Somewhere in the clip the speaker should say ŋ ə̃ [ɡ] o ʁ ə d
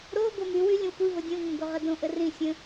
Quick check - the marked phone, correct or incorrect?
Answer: correct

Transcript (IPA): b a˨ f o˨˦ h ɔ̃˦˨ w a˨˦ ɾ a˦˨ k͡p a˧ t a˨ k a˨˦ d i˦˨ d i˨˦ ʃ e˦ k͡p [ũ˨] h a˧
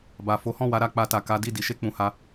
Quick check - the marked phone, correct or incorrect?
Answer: incorrect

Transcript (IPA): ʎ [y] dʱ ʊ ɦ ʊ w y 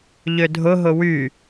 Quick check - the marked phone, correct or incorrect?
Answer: incorrect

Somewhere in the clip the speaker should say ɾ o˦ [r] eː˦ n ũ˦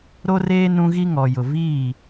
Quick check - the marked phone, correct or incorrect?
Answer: correct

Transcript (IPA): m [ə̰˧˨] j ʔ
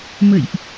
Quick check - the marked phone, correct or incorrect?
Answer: correct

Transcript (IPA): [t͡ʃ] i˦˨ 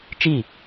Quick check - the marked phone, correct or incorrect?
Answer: correct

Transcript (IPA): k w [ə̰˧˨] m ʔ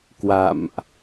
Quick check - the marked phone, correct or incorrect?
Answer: incorrect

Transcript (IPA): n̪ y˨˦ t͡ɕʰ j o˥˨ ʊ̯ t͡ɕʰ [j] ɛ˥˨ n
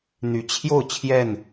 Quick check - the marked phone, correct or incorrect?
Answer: correct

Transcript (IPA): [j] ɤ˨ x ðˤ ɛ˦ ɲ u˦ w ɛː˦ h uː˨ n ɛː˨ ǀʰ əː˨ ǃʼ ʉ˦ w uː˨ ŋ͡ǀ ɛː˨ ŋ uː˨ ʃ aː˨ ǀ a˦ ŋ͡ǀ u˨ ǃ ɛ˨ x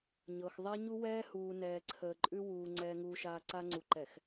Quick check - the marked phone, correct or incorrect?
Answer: incorrect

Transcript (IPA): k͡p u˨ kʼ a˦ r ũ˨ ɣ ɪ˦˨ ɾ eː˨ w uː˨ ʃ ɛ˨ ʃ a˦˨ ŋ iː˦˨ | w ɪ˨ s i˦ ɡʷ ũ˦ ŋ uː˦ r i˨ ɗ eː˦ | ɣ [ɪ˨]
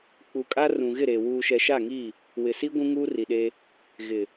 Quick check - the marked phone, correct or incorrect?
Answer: correct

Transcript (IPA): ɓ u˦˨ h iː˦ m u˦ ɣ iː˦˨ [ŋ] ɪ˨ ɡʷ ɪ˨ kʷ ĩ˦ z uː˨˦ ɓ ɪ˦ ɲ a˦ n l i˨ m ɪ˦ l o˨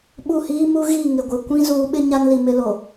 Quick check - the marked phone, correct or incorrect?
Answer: correct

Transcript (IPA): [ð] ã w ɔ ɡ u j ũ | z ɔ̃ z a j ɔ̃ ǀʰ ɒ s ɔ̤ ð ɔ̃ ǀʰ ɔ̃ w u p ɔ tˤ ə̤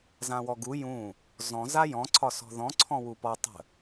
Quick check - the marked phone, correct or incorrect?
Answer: incorrect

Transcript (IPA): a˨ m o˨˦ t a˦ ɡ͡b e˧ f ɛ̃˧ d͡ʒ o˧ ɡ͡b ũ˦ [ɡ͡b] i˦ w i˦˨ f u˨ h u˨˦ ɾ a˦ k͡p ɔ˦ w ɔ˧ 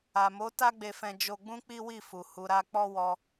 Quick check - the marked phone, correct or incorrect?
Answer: incorrect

